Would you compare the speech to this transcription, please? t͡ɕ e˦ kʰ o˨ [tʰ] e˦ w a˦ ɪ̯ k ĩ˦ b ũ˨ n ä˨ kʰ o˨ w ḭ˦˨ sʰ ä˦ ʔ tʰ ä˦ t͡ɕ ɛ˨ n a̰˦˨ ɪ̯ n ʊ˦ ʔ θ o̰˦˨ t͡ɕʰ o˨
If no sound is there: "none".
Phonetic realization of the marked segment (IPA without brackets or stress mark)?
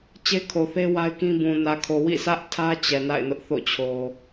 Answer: θ